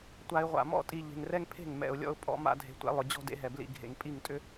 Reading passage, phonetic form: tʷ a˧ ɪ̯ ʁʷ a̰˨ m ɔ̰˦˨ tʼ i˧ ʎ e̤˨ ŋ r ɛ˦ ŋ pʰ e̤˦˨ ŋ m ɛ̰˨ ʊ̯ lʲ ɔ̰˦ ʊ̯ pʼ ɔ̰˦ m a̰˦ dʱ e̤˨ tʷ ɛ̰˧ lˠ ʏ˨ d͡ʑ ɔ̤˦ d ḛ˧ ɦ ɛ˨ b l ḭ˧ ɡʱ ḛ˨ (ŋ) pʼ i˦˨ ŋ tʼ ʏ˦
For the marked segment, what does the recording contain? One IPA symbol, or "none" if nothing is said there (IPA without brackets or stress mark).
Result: ŋ